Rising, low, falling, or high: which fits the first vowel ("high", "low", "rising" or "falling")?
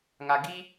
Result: low